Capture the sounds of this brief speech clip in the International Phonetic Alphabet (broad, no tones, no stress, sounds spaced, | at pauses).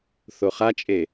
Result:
θ o χ a t͡ʃʼ e